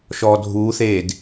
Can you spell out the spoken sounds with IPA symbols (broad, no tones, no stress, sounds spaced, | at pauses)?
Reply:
ʃ ɔː dʱ uː θ eː d